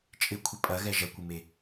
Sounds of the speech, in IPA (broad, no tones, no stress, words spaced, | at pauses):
t͡ʃʼɪkʷʰɪ pʼɐɣɛ ʒɐkʷɪme